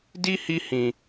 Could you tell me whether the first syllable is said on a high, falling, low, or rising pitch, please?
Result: high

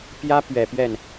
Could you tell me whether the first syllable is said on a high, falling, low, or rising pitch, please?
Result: high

